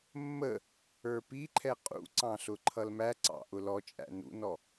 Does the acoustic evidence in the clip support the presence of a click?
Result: yes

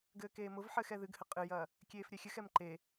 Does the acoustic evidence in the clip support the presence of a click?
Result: yes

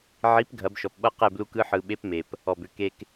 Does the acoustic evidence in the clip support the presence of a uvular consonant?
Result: yes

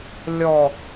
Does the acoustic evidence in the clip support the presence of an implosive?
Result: no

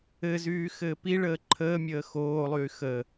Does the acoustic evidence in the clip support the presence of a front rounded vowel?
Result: yes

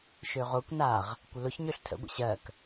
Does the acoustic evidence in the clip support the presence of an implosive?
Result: no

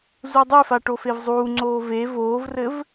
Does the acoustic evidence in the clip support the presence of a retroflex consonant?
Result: yes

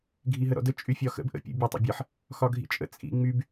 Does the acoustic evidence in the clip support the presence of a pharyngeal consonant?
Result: yes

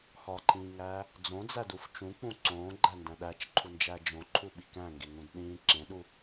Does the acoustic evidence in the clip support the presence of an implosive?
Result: yes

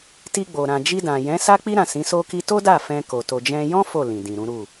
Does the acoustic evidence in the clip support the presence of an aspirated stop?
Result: no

